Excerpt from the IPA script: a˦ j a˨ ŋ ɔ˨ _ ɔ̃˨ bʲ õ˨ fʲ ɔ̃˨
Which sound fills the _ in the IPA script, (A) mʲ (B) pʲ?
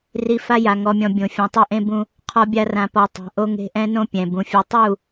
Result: A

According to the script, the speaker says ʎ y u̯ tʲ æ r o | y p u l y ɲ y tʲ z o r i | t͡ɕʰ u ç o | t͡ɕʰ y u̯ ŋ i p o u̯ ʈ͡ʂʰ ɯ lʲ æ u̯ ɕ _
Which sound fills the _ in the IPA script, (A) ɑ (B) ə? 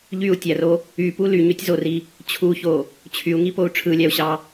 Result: A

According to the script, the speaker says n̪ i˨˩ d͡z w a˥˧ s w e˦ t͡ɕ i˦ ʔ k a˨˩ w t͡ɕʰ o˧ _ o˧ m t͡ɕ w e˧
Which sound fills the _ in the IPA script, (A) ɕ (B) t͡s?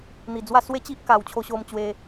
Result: A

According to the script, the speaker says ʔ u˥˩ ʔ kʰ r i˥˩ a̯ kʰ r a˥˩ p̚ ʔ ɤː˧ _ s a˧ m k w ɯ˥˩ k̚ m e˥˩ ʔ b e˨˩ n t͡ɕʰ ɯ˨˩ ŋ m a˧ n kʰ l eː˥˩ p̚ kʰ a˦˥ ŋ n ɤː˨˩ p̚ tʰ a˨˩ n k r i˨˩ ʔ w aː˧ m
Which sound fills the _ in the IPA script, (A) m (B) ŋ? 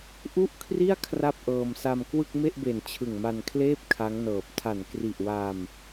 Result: A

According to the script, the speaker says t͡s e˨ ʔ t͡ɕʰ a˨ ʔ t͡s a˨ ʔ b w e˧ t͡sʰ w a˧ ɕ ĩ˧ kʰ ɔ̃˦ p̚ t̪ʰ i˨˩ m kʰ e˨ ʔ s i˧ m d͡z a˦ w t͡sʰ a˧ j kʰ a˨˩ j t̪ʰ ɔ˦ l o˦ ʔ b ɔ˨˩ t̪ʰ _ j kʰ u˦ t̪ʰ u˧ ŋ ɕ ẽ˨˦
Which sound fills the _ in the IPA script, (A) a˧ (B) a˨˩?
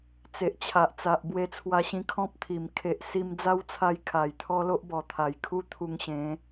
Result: B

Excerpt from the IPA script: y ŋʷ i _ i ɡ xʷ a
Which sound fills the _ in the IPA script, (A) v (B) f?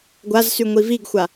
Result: A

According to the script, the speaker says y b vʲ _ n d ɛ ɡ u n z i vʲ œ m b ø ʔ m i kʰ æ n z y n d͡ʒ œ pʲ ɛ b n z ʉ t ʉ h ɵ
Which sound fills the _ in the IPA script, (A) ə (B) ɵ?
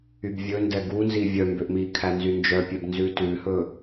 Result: B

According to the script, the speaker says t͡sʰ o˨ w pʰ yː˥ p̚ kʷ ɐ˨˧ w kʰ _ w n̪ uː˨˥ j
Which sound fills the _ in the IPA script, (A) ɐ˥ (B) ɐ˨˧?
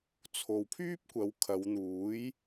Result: B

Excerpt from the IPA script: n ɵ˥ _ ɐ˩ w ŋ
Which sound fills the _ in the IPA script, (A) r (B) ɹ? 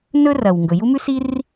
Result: A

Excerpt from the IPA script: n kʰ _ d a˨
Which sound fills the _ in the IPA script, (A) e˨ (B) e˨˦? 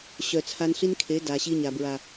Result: B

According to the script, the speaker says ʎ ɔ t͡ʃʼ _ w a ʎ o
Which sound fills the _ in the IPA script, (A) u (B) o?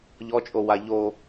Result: B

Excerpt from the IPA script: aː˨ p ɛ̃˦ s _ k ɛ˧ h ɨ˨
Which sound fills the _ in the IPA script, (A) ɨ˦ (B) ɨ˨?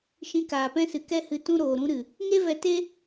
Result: B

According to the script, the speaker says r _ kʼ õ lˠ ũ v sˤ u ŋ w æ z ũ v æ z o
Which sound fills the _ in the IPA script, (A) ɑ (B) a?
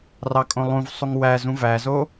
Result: A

